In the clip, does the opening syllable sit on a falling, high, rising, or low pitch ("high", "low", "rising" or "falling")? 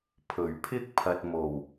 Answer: low